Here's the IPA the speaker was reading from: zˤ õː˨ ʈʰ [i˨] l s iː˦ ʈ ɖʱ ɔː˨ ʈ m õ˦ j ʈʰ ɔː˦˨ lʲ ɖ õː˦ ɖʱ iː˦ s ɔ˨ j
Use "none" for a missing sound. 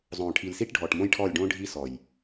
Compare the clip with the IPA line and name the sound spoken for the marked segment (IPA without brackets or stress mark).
i˨